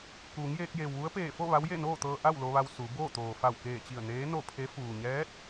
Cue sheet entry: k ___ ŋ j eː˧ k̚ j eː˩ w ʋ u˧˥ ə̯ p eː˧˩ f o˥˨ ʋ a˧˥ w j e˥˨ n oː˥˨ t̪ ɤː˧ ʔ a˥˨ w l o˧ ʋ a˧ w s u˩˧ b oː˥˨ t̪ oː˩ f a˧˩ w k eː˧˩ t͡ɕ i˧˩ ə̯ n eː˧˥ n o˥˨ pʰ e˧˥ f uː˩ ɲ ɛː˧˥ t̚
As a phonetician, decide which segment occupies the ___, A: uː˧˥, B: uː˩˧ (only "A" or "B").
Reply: B